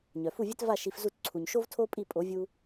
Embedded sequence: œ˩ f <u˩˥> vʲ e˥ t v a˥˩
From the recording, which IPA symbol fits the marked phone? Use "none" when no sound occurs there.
u˥˩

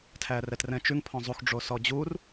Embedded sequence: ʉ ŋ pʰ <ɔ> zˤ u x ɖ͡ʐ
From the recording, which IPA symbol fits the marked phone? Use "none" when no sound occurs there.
ɔ̃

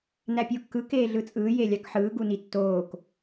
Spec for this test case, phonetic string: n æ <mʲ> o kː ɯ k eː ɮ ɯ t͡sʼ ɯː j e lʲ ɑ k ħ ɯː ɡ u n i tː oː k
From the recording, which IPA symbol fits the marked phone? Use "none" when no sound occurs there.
pʲ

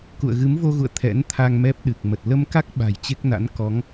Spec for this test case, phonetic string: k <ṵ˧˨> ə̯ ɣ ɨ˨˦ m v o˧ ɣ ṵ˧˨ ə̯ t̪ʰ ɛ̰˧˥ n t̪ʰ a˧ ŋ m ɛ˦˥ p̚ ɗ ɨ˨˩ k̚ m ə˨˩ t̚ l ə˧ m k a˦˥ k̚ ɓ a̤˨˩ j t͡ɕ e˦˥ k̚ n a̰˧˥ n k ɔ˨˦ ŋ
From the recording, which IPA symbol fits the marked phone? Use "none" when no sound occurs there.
ṵ˧˨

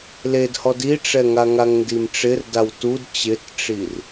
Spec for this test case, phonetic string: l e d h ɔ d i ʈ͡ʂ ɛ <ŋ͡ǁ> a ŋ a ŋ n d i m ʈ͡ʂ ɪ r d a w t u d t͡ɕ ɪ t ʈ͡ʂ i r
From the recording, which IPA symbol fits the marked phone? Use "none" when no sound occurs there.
ŋ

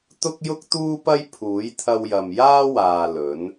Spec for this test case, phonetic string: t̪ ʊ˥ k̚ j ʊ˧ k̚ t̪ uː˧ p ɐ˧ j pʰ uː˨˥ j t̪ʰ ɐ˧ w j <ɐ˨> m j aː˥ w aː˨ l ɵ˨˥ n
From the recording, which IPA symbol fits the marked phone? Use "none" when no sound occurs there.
ɐ˨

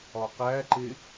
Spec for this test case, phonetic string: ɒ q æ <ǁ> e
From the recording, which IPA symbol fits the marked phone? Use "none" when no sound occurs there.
ǃ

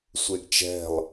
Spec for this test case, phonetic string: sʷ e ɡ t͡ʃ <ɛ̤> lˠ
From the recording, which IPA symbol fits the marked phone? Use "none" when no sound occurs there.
ɛ̤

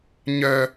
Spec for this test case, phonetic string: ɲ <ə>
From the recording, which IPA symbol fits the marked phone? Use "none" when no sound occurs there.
œ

